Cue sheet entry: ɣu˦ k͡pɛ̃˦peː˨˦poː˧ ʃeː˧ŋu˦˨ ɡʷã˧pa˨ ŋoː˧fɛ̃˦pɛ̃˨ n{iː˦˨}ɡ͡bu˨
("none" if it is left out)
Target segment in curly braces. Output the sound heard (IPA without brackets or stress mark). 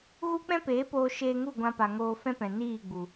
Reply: iː˦˨